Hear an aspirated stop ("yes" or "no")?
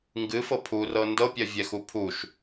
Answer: yes